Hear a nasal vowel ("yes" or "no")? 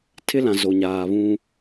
yes